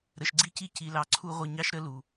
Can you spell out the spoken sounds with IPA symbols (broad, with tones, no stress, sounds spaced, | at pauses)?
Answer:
ɾ ə˨ ʃ ɡ͡ǀ i˦ c i˦ c i˨ l ɑ˨ ǀʰ u˦ ʁʷ ə˦˨ ɲ ɑ˦ ʃ ɾ ə˦ l u˨